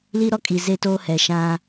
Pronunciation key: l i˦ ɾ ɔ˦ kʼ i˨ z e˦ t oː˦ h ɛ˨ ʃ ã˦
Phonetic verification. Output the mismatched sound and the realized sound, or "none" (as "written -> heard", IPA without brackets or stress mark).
none